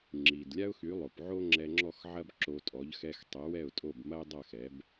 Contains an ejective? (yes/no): yes